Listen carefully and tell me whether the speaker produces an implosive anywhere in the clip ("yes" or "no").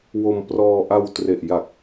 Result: no